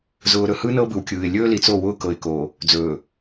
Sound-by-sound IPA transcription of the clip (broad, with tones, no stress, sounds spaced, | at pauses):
z ʊː˨ ɾ ɵ˨ h ɯ˦ n ɤ˦ b ɯ˨ w kʲ ɯː˨ ɪ̯ lʲ ɵː˦ l i˨ t͡s o˦˨ w ʊː˦ k ɤ˨ ɪ̯ k oː˨ | d͡z ɵː˨